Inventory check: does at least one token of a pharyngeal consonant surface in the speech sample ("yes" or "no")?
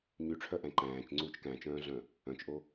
no